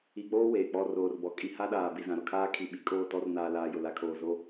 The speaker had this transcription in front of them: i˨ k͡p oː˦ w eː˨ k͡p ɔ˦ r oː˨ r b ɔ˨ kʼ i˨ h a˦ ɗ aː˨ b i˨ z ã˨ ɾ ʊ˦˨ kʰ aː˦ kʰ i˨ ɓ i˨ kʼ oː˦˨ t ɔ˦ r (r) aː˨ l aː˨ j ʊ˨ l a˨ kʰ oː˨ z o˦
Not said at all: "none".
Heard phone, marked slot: n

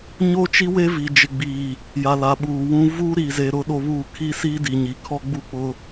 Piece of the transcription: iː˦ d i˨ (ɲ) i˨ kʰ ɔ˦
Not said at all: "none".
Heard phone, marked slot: ɲ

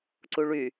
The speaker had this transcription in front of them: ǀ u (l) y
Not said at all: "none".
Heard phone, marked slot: ɭ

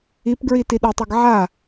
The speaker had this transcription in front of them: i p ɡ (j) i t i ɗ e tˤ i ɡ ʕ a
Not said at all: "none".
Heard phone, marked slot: ɹ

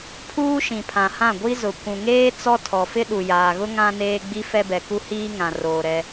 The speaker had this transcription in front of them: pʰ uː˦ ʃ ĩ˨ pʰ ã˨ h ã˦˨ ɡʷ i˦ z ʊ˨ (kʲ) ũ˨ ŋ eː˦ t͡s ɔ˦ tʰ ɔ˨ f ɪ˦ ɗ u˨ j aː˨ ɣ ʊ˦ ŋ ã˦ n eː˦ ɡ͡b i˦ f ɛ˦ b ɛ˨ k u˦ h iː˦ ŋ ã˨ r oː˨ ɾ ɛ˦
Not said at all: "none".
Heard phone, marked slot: kʷ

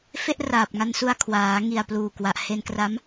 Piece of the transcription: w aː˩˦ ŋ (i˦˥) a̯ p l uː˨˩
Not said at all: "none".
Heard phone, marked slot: i˨˩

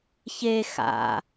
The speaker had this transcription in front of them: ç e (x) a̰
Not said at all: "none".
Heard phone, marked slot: x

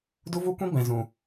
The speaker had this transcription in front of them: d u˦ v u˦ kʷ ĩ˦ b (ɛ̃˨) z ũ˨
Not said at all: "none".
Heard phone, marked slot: ɛ̃˨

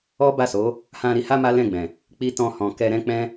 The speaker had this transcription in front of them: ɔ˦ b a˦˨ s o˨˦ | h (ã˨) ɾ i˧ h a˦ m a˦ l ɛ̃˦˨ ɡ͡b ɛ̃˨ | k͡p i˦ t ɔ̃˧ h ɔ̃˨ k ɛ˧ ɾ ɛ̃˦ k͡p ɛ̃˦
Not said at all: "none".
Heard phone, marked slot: ã˧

